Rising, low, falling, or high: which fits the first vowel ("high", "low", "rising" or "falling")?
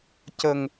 low